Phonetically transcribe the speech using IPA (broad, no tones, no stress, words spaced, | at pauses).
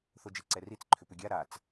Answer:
θod͡ʒiǀɛrit͡s ǃʰʏpʏɡʲa ɾat͡s